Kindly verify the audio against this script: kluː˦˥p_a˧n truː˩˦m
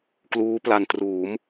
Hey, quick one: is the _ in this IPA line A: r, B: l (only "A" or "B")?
B